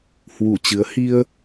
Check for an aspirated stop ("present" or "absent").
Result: absent